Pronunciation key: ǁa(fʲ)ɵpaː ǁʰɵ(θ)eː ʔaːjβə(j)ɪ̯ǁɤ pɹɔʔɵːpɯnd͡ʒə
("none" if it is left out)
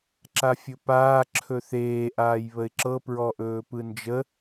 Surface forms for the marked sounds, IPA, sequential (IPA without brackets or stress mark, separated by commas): fʲ, θ, none